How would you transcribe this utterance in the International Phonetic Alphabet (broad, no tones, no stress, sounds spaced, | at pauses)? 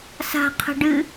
s a̤ qʰ ə̤ ɖ ɨ